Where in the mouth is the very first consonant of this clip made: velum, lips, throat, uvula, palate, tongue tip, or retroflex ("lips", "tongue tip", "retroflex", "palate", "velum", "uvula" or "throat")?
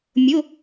lips